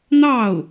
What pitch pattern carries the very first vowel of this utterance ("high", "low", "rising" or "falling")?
falling